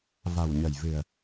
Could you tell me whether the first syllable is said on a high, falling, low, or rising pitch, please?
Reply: low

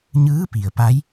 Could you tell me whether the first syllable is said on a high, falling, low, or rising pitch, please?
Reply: rising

